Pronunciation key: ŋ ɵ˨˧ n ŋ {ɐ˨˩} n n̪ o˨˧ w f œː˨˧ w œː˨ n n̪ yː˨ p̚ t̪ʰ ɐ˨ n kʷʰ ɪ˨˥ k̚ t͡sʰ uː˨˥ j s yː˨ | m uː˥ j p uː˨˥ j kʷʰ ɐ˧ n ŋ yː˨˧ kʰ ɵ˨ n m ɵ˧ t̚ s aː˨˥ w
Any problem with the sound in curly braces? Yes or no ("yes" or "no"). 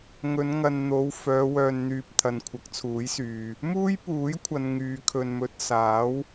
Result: yes